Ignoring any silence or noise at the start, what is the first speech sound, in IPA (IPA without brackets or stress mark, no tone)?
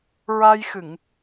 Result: ɹ